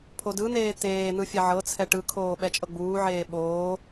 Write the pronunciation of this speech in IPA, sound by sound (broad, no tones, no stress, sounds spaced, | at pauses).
pʰ o d ɯ n̪ eː t̪ eː n̪ ɯ fʲ ɛ ʕ ɤ t͡sʰ ɛ ʈ ɯ kʰ oː ɓ ɛ t͡ʃʼ ɤ ɡ͡b uː ʕ eː ɓ oː